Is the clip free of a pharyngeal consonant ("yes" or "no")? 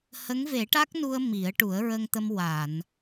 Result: yes